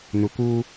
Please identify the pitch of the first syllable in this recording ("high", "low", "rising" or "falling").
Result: low